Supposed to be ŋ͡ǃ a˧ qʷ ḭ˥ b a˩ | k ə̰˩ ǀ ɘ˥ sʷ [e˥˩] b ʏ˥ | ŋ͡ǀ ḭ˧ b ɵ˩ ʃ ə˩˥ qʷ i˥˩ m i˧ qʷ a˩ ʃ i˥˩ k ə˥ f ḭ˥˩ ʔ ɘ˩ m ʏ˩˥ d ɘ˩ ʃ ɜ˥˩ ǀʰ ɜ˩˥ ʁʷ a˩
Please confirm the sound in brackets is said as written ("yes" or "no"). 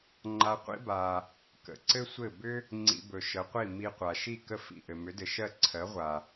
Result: no